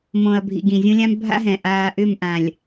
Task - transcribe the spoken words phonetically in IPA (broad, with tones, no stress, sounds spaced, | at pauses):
m õ˨ ɐ̯ bʱ ḭ˨ ɡ ĩ˨ zʲ õ˦ lʲ ã˦ m bʱ a̰˦ ɦ ɛ̃˨ ʔ aː˨ ʔ ʏ˦˨ m ʔ ã˨ lʲ